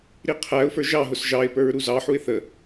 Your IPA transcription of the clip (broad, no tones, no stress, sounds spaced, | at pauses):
ɾ i qʰ æ ʊ̯ f ə˞ ʒ ɑ ɦ ʊ s ʒ ɑ ɪ̯ p ə˞ ɹ ɾ u z ɑ ħ u ɪ̯ θ ə